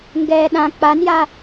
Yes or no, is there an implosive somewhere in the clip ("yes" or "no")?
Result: yes